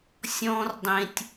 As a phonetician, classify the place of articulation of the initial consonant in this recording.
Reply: alveolar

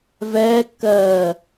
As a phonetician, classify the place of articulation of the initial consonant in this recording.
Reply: labial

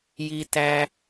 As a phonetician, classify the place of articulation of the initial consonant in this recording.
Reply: palatal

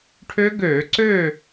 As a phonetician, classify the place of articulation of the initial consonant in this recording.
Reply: retroflex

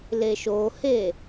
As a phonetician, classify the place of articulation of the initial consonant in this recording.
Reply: alveolar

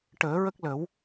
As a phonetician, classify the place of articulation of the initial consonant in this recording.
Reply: retroflex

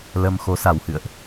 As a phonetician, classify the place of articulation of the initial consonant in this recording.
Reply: alveolar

